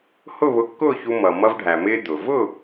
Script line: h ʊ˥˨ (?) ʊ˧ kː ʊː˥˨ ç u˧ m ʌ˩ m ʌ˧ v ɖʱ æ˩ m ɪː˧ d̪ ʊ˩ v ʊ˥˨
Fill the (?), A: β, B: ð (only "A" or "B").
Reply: A